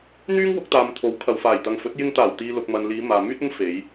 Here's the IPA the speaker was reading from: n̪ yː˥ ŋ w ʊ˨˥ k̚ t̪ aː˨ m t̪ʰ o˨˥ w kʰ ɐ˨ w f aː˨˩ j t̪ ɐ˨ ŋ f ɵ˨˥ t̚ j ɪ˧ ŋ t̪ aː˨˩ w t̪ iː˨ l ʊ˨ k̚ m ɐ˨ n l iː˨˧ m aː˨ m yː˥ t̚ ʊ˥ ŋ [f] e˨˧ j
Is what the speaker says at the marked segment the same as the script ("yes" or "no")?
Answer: yes